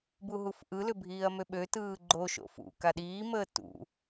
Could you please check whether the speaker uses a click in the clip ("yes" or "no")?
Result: yes